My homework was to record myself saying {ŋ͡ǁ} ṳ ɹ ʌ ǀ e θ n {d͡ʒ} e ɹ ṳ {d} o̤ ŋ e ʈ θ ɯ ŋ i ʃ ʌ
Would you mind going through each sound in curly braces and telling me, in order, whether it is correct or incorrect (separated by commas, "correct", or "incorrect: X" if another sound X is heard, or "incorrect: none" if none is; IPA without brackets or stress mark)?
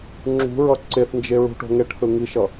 correct, correct, incorrect: ʈ